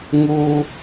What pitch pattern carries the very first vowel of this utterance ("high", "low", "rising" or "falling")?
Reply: high